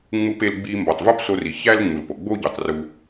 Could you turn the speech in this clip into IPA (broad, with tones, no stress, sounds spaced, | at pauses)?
ŋ͡m u˧ p e˧ l ɡ͡b i˧ m b ɒ˩ tˤ v u˥ p s o˧ r i˩ ç æ˥ l ŋ͡m u˩ l p o˩ ɡ͡b o˥ ɟ u˩ tˤ r u˧